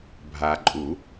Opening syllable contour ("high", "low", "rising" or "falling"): low